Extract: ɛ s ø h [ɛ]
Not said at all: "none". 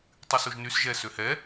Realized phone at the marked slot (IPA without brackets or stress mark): ɛ